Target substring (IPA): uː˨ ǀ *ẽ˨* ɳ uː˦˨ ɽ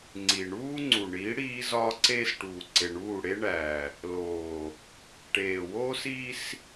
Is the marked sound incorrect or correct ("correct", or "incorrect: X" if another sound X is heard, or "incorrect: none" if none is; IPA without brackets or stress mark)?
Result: incorrect: e˨